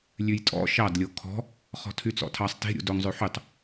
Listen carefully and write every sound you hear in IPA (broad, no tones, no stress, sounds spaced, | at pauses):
lʲ ʉ j tʼ ɔ̰ ʃ ɑ d lʲ o kʰ ɔ̤ | χ ɔ̤ tʰ y t͡s ɔ̰ tʰ ɑ sˤ t e̤ ɾʲ ṵ d o ŋ zˤ ʉ ħ y tˤ